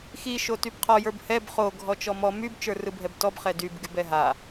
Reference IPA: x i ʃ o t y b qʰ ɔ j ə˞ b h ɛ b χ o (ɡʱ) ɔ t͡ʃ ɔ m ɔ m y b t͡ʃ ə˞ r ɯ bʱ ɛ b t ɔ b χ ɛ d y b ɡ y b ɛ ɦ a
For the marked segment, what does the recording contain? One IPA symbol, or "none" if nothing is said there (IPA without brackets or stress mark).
ɡʱ